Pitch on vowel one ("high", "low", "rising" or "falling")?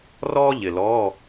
high